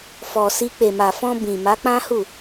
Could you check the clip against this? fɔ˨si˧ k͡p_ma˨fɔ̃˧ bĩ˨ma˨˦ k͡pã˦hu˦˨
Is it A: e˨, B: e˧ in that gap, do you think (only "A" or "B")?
A